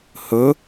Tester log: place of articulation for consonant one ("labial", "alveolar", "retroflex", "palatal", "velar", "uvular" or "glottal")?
glottal